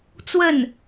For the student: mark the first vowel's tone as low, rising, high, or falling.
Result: falling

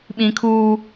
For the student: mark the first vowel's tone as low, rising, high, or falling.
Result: high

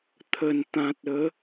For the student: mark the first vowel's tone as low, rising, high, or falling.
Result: low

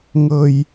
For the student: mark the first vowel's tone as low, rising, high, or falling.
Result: low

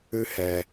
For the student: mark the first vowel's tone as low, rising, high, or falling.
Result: high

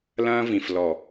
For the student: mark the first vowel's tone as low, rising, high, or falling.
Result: high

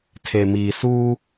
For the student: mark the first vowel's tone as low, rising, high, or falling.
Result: low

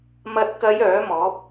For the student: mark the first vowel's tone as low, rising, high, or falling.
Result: low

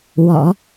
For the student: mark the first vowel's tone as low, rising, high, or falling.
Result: low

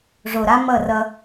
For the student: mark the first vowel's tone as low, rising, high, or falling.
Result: low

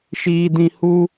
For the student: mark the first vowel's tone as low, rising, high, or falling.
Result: high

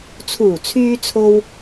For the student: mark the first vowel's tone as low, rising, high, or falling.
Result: low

